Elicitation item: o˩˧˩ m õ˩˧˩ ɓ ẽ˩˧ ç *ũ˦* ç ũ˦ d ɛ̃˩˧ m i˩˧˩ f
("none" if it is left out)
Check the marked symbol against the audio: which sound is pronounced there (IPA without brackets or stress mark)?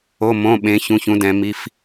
ũ˩˧˩